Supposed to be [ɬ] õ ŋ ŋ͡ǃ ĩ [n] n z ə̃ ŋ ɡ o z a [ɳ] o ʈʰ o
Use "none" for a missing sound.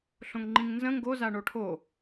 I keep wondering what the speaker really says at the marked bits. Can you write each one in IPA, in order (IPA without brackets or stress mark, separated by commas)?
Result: ɬ, ŋ, ɳ